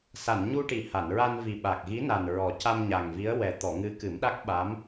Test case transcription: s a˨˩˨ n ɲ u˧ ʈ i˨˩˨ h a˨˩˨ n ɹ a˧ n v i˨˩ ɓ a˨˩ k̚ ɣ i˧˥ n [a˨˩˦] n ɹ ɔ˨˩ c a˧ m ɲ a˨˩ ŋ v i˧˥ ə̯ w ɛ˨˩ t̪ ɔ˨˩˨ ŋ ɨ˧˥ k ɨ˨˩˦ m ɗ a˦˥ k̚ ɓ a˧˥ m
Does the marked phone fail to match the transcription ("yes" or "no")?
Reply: yes